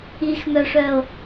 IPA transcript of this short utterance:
ixmœʂœo̯

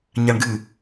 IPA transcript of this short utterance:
ɲaɳɡɨ

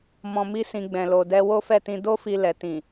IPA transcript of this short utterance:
mɔ̃˧mi˦sĩ˧ ɡ͡bɛ̃˧lo˧dɛ˦ wo˦fɛ˦˨tĩ˧ do˦fi˧ lɛ˨tĩ˨

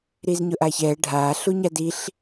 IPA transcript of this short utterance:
ɾiːzɲʊʔaːçɛː ɖʱaː ɬuɲadiɬ

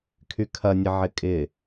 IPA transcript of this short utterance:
kʰykʰɐnʲə ʕɪkʼɪ

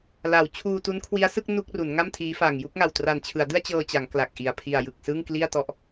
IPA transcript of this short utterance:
la˩˦w t͡ɕʰuː˧tu˦˥nkʰwi˦˥a̯sɯ˥˩k̚ nu˥˩k̚ru˩˦n ŋa˥˩m tʰiː˦˥fa˨˩ŋ ju˥˩k̚ŋa˨˩w tra˨˩nt͡ɕʰɯ˩˦a̯dɯ˥˩a̯ t͡ɕɤː˧t͡ɕa˩˦ŋ kla˨˩k̚ ʔi˨˩a̯ pʰi˨˩a̯jɯ˨˩k̚ sɯ˥˩ŋkli˥˩a̯tɔ˦˥ʔ

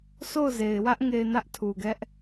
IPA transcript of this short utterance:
sʰo˦˨ʊ̯ze˨ɪ̯wä˦ʔ ŋe˨ɪ̯ nä˦ʔtʰu˨ɡɛ˦ʔ

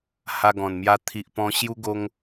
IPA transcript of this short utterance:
ha˧ɡɔ̃˨˩nmja˧ t̪ʰi˨ʔ pɔ̃˧ ɕju˧ɡo˧ŋ

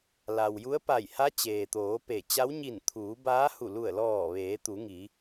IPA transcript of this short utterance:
la˩wju˧˥ə̯pa˧˩j ha˧˥ t͡ɕeː˩t̪oː˩˧ pe˧˩ t͡ɕa˧˥wɲi˧˩n t̪ʰuː˩˧baː˧˥hu˧˩ lu˧˩ə̯lɔː˧˩ ʋeː˩˧t̪u˩˧ŋi˩˧

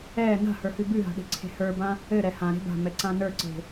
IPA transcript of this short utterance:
ɛ na̤hə˞hʉ bʉɦa̤ɗe̤ǀʰe̤ hə˞bã | ɘɾɛ hãɾe̤ ba̤mɛǀã nə˞ǀe̤

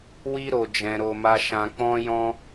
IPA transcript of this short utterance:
wi˦ ɾo˧d͡ʒɛ̃˧ɾo˧ma˦ ʃã˧k͡pɔ̃˦jɔ̃˦

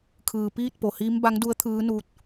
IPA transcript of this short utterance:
kʰɯː˩ piː˥˨t̚po˩hiː˧˥m ba˧˥ŋdu˧˥ə̯ t̪ʰɯː˧˥nuː˧˥t̚

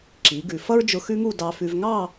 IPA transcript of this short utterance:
ǁi˩˧ɡʉ˩˧ fʌ˥ɹd͡ʒʊ˧ xʉ˥ŋu˥˧dɑ˧fʉ˧v ŋɑ˥˧

